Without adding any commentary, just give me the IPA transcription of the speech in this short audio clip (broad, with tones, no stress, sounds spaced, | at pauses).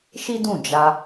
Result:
ʃ i˦ d ũ˦˨ d͡ʒ a˧